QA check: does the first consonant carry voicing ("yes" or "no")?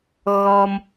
yes